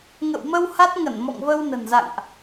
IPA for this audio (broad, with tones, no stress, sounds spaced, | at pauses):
ŋ ə̰˧˨ w m ə˧ w h a˦˥ t̚ ŋ ə˧˩ n m ɔ̰˧˨ ŋ v ə˧ w n ə̤˨˩ n z a̰˧˨ ŋ ʔ